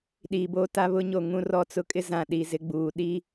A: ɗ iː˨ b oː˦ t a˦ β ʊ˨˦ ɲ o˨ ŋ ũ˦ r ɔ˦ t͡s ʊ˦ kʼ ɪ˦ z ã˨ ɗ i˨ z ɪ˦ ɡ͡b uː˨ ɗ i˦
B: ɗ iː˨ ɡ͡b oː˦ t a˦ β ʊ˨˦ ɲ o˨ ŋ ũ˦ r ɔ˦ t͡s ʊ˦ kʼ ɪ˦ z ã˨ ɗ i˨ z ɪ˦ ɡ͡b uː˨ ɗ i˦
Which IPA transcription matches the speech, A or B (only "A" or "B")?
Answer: A